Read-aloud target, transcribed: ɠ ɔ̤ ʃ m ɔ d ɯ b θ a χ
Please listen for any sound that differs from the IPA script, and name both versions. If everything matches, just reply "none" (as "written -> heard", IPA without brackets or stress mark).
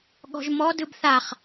ʃ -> ʒ